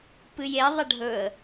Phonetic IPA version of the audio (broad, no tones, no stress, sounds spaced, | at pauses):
p ɨ j e ðˤ ɐ ɖʱ ɵ ə̯